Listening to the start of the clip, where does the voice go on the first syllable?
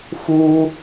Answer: high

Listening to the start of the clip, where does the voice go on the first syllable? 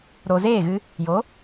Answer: low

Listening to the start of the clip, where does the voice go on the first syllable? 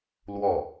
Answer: falling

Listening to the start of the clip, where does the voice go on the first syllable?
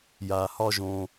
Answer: low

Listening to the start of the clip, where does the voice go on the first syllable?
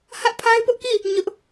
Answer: high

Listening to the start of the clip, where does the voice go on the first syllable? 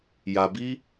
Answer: low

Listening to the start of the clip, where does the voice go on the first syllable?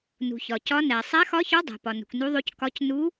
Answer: low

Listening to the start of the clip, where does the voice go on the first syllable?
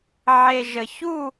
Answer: low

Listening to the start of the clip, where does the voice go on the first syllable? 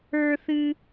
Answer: high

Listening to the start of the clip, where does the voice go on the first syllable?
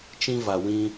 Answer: high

